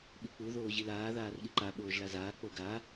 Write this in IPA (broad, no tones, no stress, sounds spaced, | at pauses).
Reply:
ɓ i k͡p u ð oː ʑ i l aː ð aː r ɠ i ǃ a ɓ oː ʒ l a z aː k͡p o ɡ a